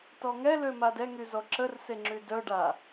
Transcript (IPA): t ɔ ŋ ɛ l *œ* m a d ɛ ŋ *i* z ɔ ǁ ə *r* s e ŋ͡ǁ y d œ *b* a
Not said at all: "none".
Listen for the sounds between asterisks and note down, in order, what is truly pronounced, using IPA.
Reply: ø, y, r, ɖ

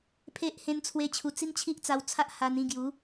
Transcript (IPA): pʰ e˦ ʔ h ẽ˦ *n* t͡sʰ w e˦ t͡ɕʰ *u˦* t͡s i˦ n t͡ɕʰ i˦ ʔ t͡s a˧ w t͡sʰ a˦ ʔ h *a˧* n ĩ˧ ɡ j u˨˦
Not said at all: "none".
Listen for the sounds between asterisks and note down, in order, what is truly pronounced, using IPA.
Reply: n, u˧, a˧

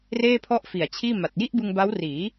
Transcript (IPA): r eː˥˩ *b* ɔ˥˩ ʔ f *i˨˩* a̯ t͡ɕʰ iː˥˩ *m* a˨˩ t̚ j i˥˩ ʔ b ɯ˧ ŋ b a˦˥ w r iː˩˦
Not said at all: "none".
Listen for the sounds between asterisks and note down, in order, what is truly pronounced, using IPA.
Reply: pʰ, i˨˩, m

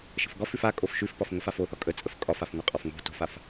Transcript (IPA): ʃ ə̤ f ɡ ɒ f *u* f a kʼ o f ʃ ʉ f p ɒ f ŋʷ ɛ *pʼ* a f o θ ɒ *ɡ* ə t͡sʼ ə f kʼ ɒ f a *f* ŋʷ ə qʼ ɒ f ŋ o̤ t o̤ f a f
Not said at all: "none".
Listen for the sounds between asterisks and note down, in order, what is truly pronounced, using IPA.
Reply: ʉ, f, kʼ, f

